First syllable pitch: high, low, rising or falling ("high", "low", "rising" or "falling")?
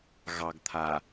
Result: low